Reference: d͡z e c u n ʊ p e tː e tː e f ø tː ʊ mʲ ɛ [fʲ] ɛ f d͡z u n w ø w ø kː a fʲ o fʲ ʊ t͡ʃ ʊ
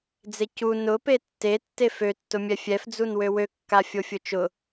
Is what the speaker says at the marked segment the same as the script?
yes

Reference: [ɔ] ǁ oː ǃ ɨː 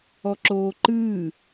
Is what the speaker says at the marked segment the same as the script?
yes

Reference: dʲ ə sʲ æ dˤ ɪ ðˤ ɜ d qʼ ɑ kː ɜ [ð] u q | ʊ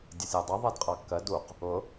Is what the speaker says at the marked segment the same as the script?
no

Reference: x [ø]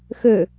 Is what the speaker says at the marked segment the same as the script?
yes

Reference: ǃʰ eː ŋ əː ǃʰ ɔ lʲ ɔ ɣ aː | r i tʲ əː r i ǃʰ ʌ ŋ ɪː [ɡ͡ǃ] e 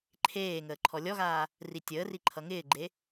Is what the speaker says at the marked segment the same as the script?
yes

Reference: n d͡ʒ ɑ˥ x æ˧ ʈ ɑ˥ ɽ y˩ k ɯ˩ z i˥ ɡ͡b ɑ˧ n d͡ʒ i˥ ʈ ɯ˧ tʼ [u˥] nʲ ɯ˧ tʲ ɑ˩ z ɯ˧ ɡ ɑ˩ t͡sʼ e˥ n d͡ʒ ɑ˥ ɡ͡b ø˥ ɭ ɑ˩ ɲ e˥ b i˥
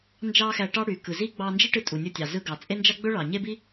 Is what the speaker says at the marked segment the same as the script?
no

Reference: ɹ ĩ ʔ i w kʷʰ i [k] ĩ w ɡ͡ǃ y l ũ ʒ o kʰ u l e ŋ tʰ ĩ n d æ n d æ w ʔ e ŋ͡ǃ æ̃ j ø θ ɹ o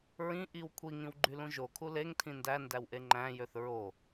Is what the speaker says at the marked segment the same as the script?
no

